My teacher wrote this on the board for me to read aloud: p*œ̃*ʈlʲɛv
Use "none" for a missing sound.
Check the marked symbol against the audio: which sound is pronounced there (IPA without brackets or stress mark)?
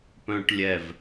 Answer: œ̃